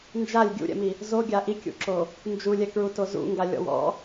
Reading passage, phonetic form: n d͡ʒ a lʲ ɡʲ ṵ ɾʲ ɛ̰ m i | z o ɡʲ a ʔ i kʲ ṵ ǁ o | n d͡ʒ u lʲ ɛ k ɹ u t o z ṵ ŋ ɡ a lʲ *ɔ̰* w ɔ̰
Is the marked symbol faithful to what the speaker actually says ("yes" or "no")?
yes